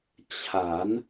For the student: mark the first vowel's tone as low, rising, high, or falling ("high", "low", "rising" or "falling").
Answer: rising